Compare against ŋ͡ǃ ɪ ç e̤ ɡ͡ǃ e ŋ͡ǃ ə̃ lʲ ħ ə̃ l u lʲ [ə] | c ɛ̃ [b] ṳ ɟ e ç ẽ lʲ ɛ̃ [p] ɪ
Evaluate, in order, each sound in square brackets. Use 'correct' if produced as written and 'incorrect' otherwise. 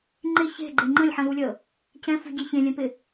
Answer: correct, incorrect: f, correct

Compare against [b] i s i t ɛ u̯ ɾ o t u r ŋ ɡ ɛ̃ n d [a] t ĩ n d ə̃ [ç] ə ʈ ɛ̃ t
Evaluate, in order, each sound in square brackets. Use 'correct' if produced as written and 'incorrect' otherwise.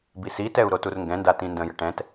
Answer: correct, correct, incorrect: j

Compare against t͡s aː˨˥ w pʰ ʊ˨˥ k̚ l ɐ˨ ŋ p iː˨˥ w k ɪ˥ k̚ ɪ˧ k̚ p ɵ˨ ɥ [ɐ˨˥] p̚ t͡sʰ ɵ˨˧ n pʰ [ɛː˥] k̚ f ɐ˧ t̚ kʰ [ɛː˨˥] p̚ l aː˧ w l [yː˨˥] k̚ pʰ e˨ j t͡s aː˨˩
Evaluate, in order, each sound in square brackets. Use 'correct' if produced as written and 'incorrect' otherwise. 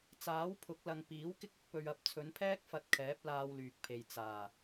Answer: correct, correct, correct, incorrect: yː˨

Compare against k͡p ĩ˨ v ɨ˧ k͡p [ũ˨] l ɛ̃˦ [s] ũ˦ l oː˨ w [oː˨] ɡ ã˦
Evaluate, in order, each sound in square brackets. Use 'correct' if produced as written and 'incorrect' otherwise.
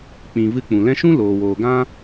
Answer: correct, incorrect: ʃ, correct

